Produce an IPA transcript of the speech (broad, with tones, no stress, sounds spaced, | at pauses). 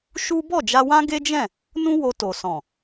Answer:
ʃ u˦ b ɔ˦˨ d͡ʒ a˧ w ã˦ ɡ e˦ d͡ʒ ɛ̃˦˨ | n ũ˦ w o˧ t o˨ s ɔ̃˨